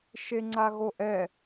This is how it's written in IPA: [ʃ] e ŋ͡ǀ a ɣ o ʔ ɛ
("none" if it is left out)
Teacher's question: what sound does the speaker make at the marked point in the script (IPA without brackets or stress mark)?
ʃ